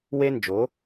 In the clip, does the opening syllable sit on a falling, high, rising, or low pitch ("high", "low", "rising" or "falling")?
high